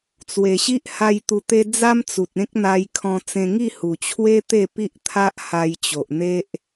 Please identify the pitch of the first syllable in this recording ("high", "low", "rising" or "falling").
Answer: low